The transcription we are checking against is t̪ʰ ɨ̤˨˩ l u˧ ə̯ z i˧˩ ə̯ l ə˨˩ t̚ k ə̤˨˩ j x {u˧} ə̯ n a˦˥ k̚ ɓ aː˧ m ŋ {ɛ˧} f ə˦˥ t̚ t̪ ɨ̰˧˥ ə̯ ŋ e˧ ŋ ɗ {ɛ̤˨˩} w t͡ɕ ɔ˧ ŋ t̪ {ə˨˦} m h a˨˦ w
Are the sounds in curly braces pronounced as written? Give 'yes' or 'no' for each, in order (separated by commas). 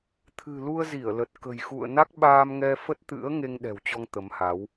no, yes, yes, yes